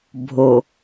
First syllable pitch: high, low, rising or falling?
low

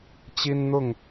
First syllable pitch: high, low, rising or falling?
high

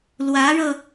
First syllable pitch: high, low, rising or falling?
rising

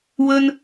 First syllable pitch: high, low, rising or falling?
high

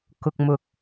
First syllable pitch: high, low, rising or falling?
low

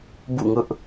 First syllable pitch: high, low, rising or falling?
falling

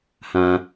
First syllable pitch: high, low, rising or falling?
low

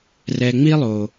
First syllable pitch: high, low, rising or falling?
low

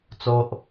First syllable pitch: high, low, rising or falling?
low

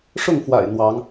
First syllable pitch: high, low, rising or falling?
falling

